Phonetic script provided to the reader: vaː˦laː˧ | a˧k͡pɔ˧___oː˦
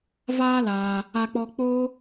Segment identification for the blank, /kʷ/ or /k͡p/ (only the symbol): k͡p